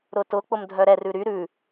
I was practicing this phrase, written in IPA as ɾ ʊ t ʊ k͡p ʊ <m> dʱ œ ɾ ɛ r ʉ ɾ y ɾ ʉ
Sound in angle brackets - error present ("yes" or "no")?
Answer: no